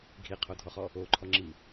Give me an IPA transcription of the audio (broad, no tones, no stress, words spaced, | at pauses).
ɡʱiqʰodʱɔχɔ | oǃʰɔŋ͡ǁi